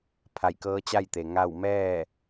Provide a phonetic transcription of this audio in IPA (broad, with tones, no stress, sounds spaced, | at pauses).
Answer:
pʰ a˧˩ j k ɤː˧˥ t͡ɕ a˥˨ j t̪ e˩ ŋ a˥˨ w m ɛː˥˨